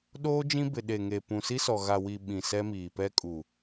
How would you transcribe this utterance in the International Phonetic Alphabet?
ɗoː˦d͡ʒĩ˦bɪ˨ ɗe˨ŋe˨ pũ˨si˦sɔ˨ ɣa˨wi˨ ɓĩ˨sɛ˦miː˨ pɛ˦kʼu˨

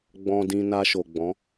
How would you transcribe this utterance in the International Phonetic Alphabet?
ɡ͡bɔ̃˨dĩ˨ na˧ʃo˨ɡ͡bɔ̃˨˦

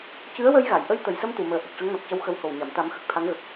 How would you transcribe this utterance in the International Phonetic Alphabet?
cɨ˧˥ə̯wə˧j ɣa˨˩˨jʔə˧j t̪ə˨˩jsə˧m t̪u˨˩˨məː˨˩ ʔə˨˩k̚ʂə˧˥ŋnɔ˨˩k̚cə˧w xə˧˥who˨˩wɲa˨˩˨m t̪a˨˩˦mxə˨˩k̚ t̪ʰa˧˥ŋɣə˨˩k̚

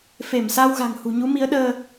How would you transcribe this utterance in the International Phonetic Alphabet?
fe˧˩msa˧w ɣa̤˨˩ŋhṳ˨˩ɲu˨˦mi˨˦ə̯ ɗəː˧

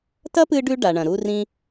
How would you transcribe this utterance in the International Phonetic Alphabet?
tɐ˦pɨ˧ɖʉ˧ ɖa˨ɳɐ̃˨ ɾu˧rĩ˧

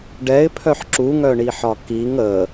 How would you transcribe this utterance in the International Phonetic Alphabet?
ɖɛɪ̯pʰœħ ǁuŋœɳiħɒ kiŋ ə

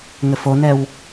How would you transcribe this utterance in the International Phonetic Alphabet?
ŋɘfonɛw

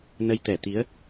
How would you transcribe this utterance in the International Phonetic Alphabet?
nə˨˦jt̪ɛ˧˩t̪i˨˦ə̯

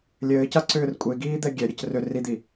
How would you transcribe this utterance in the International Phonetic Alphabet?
lʲɘːcaǀʏːr kʷʼeɡiːd̪ɛ ɡʲɛɾʲɘc rʏ rid̪i

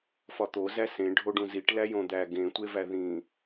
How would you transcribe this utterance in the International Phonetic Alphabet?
fɒt̪o zæsẽ ɖʱoɖũziʈ læjõd̪æ ɡẽ tʷevæðĩ

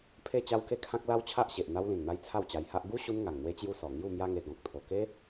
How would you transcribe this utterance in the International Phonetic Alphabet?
pʰe˥˧t͡ɕa˦wke˦ kʰã˦k̚la˦wt͡ɕʰa˦ʔɕe˨ʔ n̪a˧wlĩ˨˩n n̪a˦jt͡sʰa˥˧wt͡ɕa˧jha˦ʔ ɡu˦ɕu˧n ŋa˨˩ŋn̪we˧t͡ɕju˧ sɔ˨˩ŋju˥˧mja˦ŋe˧ ɡɔ̃˨k̚t̪ʰo˨˩ke˦

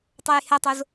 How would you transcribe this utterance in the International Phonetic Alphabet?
tˤojhætˤoz

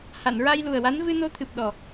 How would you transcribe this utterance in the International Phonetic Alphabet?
ha˨˩˨nɹa˧jlu˨˩ə̯wa˧˥n vɨ˧no˧˥t̪ʰɨ˨˩p̚ɗɔ˨˩

